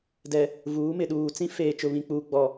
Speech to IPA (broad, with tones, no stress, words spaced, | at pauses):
dɛ˨ | vuː˨˦mɪ˨ɗuː˨ t͡sĩ˦feː˨t͡ʃʊ˨ βĩ˨k͡puː˨ɡ͡bɔ˨